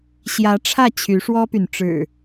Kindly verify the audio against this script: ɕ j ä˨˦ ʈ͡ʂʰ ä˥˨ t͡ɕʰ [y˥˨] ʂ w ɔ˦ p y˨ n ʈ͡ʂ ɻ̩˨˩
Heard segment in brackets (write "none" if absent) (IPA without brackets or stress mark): y˨˦